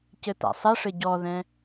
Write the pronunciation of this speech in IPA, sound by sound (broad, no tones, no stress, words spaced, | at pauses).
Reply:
cɘta̰sˤɐʂɘ ɟɔðɛ̃